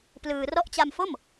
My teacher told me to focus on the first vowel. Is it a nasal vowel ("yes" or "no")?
no